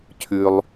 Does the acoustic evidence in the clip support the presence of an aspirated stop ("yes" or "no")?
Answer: yes